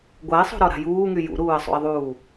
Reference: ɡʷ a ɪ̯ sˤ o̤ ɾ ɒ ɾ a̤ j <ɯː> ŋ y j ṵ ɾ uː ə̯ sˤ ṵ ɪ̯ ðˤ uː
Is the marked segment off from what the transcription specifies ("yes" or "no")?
yes